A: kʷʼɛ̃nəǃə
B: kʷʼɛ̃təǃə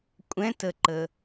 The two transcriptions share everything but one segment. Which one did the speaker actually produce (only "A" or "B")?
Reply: B